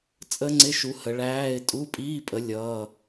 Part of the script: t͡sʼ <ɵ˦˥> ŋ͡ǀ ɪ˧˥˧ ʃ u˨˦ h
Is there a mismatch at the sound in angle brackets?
yes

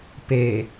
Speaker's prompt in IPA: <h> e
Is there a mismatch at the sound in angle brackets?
yes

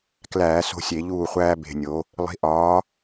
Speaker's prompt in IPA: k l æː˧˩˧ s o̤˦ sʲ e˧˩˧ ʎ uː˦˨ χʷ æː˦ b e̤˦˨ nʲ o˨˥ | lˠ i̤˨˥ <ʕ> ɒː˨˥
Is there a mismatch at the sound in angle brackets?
yes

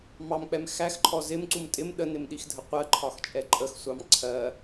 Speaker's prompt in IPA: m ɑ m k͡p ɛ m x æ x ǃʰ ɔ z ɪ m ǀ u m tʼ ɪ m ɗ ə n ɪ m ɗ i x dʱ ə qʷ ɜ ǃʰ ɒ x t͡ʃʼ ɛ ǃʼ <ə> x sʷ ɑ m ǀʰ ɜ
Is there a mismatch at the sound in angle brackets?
no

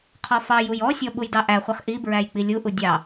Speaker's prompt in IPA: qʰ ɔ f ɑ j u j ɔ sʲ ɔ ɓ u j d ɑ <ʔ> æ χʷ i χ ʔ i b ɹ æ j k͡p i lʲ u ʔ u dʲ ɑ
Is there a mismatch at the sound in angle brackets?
no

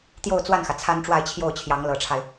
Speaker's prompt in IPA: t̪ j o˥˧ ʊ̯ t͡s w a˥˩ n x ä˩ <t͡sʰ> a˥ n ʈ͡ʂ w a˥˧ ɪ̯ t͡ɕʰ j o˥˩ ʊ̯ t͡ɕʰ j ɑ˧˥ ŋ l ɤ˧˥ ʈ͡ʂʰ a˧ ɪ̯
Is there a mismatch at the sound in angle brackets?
no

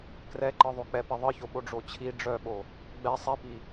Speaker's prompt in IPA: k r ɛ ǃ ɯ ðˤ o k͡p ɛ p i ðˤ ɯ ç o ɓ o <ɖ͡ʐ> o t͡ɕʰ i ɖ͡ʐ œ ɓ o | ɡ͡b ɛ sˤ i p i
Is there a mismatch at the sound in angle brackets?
no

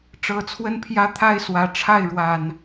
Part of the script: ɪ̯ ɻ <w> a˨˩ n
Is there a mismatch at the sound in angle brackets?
no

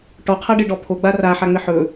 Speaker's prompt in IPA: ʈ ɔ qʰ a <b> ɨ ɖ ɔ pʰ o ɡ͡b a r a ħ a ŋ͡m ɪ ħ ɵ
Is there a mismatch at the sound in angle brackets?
yes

